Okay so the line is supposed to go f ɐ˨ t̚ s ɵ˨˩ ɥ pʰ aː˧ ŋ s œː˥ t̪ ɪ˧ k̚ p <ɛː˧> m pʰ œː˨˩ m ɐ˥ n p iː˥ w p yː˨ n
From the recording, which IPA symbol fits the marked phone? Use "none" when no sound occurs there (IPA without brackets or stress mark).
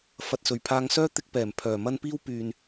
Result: ɛː˨˩